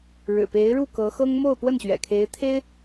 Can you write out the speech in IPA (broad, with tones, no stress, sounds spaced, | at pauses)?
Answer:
ɻ ɻ̩˨˩ p e˧˥ ɪ̯ ɻ u˥˩ k ɤ˧˥ x ɤ˥ ŋ m o˥˧ ʊ̯ p w ə˥˩ n ɕ ɥ ɛ̰˨˩ kʰ e˧˥ ɪ̯ t̪ʰ e˥ ɪ̯